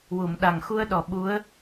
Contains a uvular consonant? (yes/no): no